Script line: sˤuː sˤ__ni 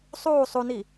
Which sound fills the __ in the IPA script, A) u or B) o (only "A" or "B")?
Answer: A